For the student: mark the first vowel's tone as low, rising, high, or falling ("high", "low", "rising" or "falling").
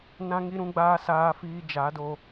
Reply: high